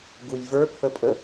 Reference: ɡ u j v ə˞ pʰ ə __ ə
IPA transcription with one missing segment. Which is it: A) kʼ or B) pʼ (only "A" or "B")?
B